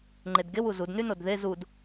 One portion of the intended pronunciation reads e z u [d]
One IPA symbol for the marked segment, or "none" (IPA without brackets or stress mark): d